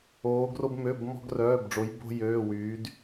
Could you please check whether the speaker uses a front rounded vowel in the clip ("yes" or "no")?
yes